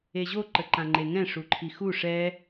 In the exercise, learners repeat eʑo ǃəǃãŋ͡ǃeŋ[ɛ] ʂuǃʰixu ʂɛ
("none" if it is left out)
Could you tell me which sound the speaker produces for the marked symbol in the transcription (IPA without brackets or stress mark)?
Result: ɛ̃